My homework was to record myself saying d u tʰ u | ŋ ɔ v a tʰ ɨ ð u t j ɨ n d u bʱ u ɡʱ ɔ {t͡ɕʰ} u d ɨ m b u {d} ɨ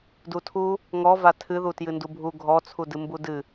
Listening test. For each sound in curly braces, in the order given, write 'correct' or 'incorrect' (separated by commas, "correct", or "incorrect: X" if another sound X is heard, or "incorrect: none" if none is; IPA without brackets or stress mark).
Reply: incorrect: t͡sʰ, correct